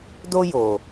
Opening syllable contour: high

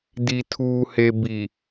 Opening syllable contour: low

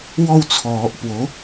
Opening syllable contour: falling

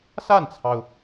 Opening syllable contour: falling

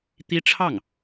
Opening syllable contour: high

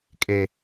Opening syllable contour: high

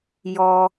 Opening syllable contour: low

